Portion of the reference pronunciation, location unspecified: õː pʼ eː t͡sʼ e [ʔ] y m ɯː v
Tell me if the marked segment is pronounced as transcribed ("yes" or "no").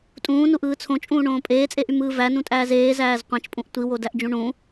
yes